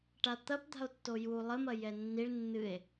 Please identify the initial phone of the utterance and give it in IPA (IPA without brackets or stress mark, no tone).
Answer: ʈ